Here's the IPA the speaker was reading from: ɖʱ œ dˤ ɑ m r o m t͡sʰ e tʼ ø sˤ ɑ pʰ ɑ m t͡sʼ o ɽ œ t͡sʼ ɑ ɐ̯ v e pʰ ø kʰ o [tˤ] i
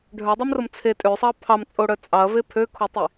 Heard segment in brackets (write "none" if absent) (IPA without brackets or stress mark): tˤ